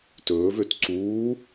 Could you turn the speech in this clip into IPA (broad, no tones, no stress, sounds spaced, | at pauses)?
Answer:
t ɵː v ø t ǀ uː